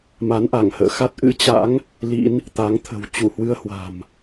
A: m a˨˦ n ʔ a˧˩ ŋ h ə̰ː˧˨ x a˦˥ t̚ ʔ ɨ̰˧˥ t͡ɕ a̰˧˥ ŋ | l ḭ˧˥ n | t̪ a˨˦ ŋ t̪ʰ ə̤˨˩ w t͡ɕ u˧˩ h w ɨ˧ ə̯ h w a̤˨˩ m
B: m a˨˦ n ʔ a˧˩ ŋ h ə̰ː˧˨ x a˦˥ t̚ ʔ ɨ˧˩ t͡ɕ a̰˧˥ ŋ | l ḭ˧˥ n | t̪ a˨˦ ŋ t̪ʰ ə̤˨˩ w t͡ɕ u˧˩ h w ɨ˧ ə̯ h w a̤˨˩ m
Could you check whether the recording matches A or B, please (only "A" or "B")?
A